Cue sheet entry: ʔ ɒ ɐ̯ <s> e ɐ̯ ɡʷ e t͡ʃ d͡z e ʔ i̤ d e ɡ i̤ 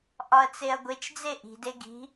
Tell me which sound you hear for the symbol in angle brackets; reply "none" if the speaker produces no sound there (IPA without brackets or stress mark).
t͡s